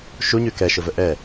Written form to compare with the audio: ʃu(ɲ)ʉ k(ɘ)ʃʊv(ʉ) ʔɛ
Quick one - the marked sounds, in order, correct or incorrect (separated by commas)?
correct, incorrect, incorrect